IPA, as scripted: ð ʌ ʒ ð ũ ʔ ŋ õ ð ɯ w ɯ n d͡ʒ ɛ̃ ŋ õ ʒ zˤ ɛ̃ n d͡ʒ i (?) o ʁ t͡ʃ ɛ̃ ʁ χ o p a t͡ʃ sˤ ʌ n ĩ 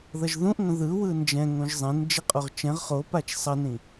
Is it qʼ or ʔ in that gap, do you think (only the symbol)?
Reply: qʼ